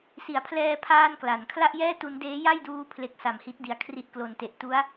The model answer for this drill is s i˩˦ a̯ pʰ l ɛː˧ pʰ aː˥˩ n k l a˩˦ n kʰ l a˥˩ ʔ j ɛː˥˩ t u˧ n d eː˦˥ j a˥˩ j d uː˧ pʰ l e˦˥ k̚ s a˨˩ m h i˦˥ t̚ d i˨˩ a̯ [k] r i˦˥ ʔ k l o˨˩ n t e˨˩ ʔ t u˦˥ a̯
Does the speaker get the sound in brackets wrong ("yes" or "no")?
yes